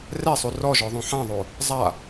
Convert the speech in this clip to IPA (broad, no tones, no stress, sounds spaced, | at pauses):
r ɛ sˤ u r ɔ ʒ ɔ ðˤ ũ ħ ã ðˤ o | zˤ a